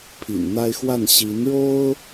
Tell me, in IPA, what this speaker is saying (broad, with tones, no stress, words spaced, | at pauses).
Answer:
pʰḭ˨˩nn̪a˥ɪ̯xwa˥˩n ɕi˧˥nɻo˥ʊ̯